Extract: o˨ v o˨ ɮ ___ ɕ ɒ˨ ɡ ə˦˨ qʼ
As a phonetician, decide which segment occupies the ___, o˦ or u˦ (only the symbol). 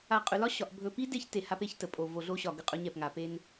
o˦